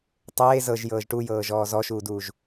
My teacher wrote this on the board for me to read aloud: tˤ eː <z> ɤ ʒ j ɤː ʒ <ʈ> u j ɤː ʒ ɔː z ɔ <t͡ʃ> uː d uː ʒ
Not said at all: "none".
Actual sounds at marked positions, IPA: z, ʈ, ʃ

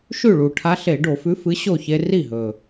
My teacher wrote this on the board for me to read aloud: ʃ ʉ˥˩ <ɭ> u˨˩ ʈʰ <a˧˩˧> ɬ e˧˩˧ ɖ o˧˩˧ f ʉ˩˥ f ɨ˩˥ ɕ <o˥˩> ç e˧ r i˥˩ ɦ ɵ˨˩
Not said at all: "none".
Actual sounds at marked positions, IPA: ɭ, a˧˥, o˥˩

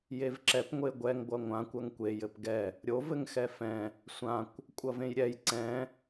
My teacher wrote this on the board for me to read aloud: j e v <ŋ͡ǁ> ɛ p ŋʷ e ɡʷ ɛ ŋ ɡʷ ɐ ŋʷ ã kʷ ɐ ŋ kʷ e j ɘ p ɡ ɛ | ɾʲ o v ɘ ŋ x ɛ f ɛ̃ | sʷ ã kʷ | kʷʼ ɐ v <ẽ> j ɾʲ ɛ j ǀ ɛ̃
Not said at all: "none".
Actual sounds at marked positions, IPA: ǁ, ẽ

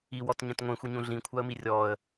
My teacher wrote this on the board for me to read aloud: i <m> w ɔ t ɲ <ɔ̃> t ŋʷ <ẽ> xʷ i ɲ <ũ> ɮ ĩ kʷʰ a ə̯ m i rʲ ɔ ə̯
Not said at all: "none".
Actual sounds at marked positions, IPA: none, ə̃, ẽ, ũ

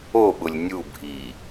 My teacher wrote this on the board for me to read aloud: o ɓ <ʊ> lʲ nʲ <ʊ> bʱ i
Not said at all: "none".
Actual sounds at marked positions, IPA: ʊ, u

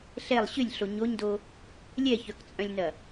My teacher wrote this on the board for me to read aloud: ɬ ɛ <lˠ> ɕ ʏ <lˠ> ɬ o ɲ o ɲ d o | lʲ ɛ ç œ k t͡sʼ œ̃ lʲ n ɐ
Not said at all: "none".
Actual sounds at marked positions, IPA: lˠ, lʲ

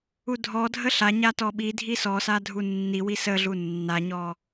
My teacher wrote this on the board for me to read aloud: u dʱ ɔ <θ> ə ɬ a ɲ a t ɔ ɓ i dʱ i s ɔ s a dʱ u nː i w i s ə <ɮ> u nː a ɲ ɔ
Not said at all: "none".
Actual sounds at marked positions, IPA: dʱ, ɮ

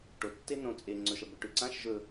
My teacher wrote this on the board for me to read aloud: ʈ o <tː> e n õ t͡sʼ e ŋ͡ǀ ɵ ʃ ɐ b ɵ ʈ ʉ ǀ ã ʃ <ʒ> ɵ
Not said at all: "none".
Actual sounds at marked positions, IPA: tː, ʒ

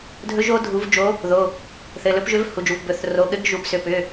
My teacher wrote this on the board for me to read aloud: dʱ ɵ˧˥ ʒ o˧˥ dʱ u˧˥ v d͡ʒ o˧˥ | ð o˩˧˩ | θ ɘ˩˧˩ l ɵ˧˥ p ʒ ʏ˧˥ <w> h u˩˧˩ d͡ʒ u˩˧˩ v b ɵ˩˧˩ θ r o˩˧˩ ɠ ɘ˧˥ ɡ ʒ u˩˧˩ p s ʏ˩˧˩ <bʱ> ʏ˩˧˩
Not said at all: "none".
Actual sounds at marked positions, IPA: v, p

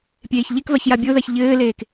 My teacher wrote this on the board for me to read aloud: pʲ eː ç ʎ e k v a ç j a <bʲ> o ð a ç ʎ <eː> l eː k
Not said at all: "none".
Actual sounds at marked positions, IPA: bʲ, ɘː

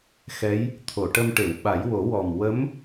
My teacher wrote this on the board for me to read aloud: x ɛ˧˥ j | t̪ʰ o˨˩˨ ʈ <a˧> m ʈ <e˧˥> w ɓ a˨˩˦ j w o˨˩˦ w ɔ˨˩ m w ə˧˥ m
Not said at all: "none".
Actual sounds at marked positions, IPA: ə˧, e˨˩˨

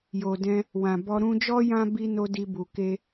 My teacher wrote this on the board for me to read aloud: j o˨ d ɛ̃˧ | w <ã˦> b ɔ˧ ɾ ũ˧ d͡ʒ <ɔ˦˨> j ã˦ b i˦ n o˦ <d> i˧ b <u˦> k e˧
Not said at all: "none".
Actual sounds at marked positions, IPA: ã˨, ɔ˦, d, u˨

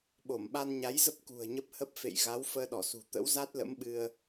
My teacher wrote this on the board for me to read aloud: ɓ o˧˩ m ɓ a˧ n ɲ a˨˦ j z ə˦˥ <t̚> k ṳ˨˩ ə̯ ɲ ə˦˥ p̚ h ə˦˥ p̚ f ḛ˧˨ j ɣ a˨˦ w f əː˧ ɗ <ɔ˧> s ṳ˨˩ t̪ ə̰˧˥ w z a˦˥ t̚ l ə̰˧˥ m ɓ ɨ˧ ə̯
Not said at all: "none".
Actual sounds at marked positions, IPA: p̚, ɔ˧˩

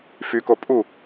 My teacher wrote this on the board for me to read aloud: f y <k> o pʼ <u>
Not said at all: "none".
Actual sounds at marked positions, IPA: k, u

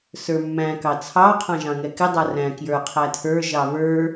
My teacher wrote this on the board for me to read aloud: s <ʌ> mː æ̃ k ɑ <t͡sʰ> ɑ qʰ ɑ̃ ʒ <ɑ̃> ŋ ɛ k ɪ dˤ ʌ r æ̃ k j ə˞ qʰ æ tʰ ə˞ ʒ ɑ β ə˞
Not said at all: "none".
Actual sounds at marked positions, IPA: ə˞, t͡sʰ, ɑ̃

